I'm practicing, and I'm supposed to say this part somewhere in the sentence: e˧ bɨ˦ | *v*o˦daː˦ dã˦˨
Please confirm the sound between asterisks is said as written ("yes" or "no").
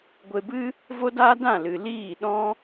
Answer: yes